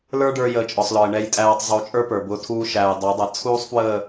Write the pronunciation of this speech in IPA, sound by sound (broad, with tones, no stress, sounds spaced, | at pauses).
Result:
l ə˞˦ ɖ ə˞˧ j əː˨˦ t͡ʃʼ ɔ˨ sˤ l ɔ˨ ə̯ ɳ ɛ˧ j tʼ æː˧ tˤ zˤ u˨˦ t͡ʃʼ ə˞˦ p ə˞˨ b ʊː˧ tʰ uː˧ ʃ æː˨ j dˤ æ˨˦ dˤ ʌ˨ t͡sʰ uː˦ sˤ f w əː˦˨